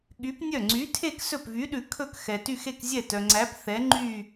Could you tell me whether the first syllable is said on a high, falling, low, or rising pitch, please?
rising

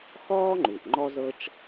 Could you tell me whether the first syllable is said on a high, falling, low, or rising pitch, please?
high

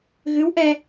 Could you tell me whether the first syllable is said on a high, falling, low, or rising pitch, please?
rising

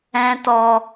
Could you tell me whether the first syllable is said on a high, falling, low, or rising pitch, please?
high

